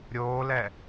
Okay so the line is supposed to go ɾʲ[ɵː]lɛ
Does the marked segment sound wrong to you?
yes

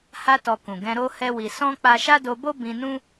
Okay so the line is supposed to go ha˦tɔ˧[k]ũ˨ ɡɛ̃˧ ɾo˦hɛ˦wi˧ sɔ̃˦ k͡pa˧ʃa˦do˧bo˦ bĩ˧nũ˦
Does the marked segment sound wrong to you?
no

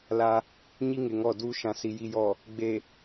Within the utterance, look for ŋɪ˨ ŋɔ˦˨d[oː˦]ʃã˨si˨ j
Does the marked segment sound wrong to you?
yes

